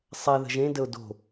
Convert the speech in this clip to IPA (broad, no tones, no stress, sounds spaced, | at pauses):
sˤ ɛ ð ə̤ ʒ ẽ d ə ʊ̯ d o̤